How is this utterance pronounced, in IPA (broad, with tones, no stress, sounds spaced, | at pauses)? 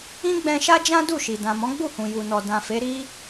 ĩ˦ ɡ͡b ɛ̃˧ ʃ a˦ d͡ʒ ã˦ d u˦˨ ʃ i˨ d ã˨ m ɔ̃˨˦ ɡ͡b u˦˨ h ũ˨ j u˨ n ɔ˨ d ã˨ f e˨˦ ɾ i˦